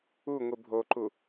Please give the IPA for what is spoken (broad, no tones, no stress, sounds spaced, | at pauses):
u ŋʷ i bʱ o ǃ u